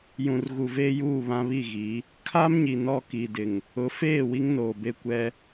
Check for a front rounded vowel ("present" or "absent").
absent